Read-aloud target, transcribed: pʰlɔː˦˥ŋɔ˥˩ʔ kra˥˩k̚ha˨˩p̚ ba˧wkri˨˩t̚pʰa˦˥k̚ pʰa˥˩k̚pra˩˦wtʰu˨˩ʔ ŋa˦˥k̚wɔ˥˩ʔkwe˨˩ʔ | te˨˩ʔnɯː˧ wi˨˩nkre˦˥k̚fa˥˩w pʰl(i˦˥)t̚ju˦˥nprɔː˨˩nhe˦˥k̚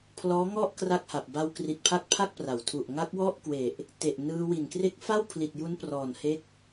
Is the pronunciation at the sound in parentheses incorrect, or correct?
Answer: incorrect